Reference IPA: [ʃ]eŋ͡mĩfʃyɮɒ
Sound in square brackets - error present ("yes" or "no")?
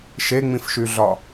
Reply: no